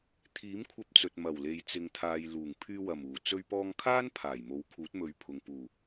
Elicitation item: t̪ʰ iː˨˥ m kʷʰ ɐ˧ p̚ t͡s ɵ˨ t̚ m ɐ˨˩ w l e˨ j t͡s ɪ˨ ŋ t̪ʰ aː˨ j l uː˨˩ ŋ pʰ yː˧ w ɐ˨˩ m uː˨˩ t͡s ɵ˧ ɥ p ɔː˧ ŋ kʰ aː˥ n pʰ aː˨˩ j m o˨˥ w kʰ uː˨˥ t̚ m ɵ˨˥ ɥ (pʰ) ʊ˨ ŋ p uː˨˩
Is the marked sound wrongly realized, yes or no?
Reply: no